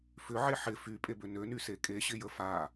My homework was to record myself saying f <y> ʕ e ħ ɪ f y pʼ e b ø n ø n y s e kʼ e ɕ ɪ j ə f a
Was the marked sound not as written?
yes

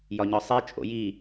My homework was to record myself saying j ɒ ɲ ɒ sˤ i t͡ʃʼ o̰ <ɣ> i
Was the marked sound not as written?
yes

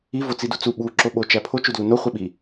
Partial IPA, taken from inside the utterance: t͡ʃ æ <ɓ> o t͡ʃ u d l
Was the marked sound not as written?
yes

